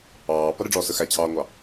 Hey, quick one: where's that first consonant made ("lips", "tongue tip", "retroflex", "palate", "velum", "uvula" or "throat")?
lips